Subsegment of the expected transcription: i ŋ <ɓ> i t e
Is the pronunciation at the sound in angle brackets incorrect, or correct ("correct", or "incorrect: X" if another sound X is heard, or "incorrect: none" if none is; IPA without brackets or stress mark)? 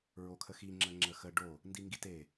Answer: incorrect: ɡ